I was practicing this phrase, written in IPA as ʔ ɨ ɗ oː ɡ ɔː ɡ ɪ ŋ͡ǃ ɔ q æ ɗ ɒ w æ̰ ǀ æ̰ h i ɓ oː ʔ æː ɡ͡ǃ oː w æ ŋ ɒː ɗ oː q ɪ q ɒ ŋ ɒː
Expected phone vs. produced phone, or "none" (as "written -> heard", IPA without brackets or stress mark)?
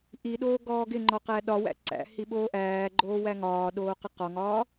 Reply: ɨ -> i